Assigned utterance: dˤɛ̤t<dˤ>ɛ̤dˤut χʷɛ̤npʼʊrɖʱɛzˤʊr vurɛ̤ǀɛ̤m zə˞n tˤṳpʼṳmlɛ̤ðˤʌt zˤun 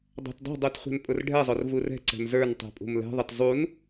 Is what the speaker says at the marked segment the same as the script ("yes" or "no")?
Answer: yes